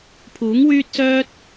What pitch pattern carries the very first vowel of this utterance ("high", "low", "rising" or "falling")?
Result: rising